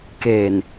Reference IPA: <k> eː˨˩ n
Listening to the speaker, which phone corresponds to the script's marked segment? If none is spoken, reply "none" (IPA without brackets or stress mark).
k